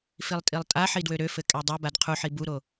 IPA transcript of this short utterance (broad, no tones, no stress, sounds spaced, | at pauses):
f i lˠ tʼ i lˠ tʼ a ħ i d w ø ɾ ø f ɘ kʼ ɛ dˤ o b a d qʰ u ħ i b u ɾ o